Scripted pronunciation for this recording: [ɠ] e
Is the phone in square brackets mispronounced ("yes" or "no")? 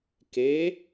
yes